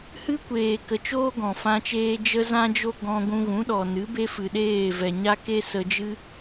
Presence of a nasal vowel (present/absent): present